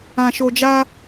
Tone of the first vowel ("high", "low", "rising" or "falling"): low